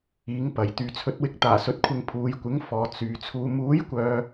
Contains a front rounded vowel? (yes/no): yes